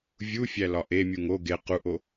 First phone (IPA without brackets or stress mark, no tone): vʲ